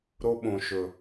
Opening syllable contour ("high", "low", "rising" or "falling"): high